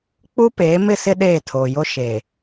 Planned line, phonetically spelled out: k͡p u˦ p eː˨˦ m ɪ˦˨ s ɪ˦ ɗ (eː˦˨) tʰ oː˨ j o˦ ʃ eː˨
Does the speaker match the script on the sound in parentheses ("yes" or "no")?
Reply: yes